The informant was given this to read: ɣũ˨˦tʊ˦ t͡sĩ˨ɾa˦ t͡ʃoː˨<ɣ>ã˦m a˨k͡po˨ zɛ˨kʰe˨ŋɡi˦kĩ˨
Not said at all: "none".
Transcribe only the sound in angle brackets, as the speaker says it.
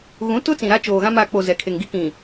ɣ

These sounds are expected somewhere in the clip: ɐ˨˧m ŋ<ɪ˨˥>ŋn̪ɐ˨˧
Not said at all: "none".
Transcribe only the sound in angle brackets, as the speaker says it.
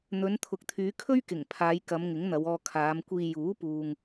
ɪ˨˥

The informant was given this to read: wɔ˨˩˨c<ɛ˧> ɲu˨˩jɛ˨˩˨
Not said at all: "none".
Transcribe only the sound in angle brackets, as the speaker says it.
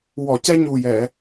ɛ˧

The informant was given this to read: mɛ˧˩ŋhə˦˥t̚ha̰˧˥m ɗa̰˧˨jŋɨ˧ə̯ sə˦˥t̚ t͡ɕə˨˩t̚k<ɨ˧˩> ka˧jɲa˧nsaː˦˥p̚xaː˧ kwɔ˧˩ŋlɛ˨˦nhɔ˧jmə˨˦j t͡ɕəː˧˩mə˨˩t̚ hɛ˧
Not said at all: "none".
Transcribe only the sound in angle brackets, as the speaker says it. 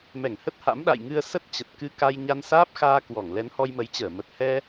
ɨ˧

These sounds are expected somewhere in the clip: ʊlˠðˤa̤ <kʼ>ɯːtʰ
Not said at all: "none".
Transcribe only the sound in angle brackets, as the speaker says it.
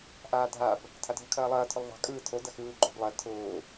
kʼ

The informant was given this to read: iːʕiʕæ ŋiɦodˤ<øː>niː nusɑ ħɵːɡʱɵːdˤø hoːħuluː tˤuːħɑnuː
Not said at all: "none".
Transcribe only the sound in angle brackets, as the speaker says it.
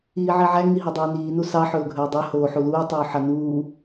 øː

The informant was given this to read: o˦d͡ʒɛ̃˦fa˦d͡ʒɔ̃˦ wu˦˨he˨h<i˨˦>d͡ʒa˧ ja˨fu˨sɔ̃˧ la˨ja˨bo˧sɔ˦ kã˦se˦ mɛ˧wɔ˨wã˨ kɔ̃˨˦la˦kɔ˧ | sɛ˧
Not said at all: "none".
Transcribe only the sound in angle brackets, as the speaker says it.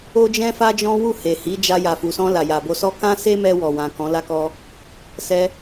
i˨˦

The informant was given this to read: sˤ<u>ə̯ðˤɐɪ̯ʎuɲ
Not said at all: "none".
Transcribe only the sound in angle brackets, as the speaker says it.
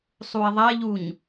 u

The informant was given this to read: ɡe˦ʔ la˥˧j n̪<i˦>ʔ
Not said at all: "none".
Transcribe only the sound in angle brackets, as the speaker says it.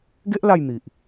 i˨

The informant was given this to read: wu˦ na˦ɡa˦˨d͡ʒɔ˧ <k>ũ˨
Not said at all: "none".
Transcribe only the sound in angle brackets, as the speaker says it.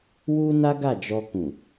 k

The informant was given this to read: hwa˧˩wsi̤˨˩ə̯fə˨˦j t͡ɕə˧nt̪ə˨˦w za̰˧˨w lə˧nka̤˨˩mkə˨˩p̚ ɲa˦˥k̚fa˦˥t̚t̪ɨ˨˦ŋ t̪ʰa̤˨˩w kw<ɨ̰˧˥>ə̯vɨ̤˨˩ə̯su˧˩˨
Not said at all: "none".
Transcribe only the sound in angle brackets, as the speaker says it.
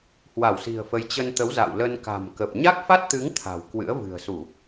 ɨ̰˧˥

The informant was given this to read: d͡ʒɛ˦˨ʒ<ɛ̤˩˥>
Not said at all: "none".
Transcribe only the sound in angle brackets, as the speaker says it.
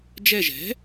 ɛ̤˩˥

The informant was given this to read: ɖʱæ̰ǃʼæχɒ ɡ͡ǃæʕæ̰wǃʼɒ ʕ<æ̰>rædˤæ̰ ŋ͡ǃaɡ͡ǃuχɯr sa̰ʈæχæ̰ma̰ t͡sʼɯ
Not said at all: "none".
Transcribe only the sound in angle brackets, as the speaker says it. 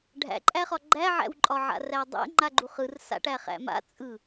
a̰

